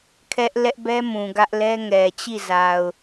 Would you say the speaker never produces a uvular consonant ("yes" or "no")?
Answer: yes